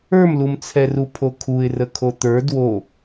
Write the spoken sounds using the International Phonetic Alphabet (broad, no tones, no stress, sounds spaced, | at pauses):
ə˞ m l u m t͡sʰ ɛ r u pʰ o kʰ u ɪ̯ r ə kʰ o t̪ ə˞ d w o